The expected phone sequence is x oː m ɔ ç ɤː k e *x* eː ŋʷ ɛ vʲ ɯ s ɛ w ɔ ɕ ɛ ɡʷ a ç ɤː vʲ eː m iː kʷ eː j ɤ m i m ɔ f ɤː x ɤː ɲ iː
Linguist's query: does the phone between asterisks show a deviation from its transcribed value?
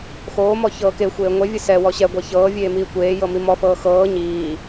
yes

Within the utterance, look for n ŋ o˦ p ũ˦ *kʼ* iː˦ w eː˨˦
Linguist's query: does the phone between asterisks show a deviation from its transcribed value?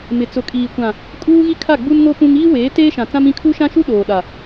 yes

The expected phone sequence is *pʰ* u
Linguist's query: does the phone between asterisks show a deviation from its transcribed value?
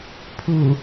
no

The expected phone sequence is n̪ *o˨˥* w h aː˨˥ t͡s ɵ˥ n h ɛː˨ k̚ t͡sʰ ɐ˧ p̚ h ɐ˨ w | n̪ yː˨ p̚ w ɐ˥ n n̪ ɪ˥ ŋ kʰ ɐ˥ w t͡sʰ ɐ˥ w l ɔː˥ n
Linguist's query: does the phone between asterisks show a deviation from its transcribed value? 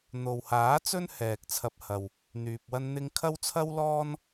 yes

